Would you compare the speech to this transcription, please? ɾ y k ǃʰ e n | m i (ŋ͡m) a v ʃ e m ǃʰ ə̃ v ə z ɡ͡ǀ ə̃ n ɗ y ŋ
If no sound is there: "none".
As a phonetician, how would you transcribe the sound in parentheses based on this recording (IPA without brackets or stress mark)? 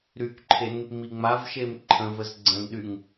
ŋ͡m